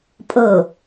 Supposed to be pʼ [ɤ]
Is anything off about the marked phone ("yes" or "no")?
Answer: no